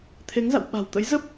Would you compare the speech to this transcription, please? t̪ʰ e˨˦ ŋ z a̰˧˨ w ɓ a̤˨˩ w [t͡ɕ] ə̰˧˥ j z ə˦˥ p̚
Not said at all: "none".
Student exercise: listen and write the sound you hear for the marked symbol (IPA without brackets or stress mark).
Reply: t̪